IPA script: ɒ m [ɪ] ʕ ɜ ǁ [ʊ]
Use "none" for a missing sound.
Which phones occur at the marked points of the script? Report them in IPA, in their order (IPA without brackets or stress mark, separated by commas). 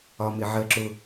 ɪ, ʊ